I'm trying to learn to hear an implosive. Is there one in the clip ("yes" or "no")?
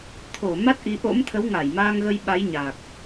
yes